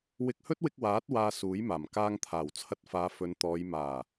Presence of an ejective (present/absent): absent